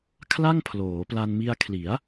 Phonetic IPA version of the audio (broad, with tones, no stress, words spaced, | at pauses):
kʰla˥˩ŋ pʰloː˩˦pla˧nmi˧a̯kʰli˩˦a̯